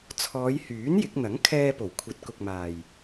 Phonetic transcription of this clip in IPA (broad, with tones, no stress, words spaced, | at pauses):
t͡sʰɔː˨˧j hyː˨˥n jɪ˨˥k̚ n̪ɐ˨˥ŋkʰɛː˧po˨˩w kʷʰɐ˨˥t̚kʊ˨k̚maː˨˩j